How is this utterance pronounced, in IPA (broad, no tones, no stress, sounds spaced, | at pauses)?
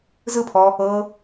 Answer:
z ɯ pʰ ɔ | ɤ